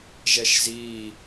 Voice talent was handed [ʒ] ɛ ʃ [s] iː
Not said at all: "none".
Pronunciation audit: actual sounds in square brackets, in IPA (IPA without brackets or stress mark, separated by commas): ʒ, z